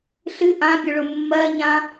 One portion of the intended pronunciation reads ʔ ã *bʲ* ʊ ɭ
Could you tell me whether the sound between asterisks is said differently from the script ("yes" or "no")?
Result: no